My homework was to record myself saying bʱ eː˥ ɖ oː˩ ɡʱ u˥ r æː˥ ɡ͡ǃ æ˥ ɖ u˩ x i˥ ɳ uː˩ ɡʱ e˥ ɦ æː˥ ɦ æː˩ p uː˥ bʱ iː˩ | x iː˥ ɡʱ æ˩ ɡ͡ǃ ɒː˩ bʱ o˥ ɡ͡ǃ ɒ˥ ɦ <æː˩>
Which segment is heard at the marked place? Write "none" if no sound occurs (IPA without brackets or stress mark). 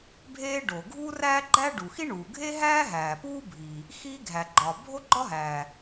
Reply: æː˩